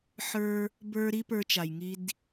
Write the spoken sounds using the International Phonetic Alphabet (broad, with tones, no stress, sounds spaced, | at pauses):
ħ ə˞˧ | b ə˞˧ ɾ i˦ p ə˞˦ t͡ʃ a˨ j ŋ i˦ d